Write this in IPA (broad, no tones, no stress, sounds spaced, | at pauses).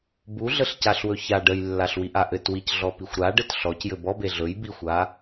b u ɮ ə ɬ c a ɬ w ɵ ç a ɖ ə j lː a ɬ w i ʔ a ʔ ɘ t w i c ɮ ɔ p i xʷ ɾ a ɖ ɘ t ɬ ɔ c j ɘ b ɔ b e ɮ ɵ j b i xʷ a